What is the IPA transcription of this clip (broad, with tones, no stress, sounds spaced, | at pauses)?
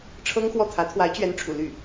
ʈ͡ʂʰ ɤ˥ ŋ x w ɔ˥˩ t̪ʰ ä˧˥ t̪ʰ w a˧˥ ɪ̯ t͡ɕ ɥ ɛ˧˥ n ʈ͡ʂʰ ṵ˨˩ l y˥˩